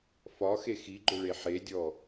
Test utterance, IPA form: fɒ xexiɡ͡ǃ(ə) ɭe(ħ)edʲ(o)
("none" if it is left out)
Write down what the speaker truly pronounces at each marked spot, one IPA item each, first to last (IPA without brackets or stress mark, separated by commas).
ʊ, ħ, ɔ